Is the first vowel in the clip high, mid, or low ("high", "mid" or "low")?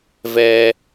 mid